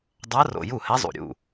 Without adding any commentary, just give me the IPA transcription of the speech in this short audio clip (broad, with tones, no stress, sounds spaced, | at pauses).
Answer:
dˤ a˧˥ r o̰˨˩ j u˥˩ h ɛ˧˥ zˤ ṵ˨˩ ɾʲ ṵ˥˩